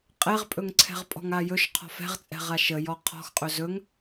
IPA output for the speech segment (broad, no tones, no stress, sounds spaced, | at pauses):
qʼ ɛ ʁ pʼ ɵ ŋ ǀʰ ɛ̤ ʁ pʼ ɔ̤ ŋ a j ɵ ʃ qʰ ɔ̤ f ɛ̤ ʁ t͡sʼ ɛ̤ ʁ a ʃ ə j ɔ qʰ ɔ̤ x qʼ ɵ z ɵ ŋ